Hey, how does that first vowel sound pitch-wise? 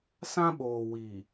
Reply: high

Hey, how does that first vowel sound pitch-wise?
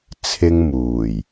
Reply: high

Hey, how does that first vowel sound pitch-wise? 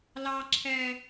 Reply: high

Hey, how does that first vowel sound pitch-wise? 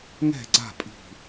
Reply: falling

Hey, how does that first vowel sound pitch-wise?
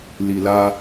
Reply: low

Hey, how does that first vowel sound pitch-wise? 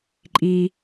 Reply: low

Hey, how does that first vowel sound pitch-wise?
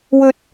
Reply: high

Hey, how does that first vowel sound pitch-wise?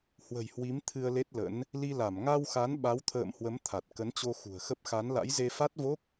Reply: low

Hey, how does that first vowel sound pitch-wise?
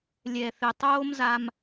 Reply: low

